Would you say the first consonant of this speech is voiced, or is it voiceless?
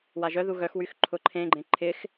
voiced